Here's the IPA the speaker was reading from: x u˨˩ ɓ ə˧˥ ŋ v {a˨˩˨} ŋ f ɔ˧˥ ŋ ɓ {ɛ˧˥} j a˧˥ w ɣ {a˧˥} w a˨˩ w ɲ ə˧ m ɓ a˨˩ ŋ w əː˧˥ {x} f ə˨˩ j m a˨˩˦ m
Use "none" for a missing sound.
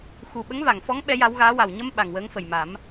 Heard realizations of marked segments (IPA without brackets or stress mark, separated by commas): a˨˩˨, ɛ˧˥, aː˧˥, ŋ